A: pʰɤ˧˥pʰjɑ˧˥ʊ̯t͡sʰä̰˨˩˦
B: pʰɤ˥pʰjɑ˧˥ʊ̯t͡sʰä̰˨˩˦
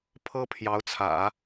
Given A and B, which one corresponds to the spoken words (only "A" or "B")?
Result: B